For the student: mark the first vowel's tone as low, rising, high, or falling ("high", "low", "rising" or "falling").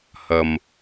low